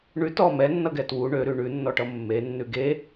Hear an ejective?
no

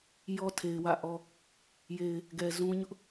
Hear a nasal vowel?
yes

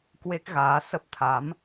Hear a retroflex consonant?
no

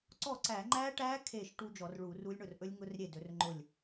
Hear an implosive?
no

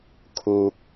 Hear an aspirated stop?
yes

